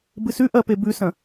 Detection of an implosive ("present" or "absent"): absent